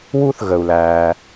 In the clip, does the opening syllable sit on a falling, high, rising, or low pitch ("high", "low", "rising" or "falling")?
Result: high